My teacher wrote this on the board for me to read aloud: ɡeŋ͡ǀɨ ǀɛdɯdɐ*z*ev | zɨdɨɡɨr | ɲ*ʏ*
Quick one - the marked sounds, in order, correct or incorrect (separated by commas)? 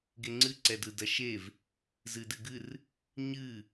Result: incorrect, incorrect